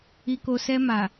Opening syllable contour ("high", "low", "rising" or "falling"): low